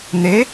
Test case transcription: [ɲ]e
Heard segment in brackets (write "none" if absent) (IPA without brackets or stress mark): n̪